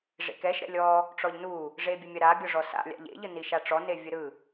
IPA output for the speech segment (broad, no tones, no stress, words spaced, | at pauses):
ʐḛkɛʃ ɾɛ̰lʲɔ | ʈ͡ʂɔʎnu | ʐebʲɯmʲɐɾa bʲɔʐɔsa̰ lʲa̰ʎḛ ʎɯniʃaʈ͡ʂɔ nevʲɯɾɯ